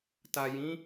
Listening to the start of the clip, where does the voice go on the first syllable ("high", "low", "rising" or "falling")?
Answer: low